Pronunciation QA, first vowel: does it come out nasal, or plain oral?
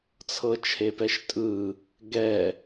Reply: oral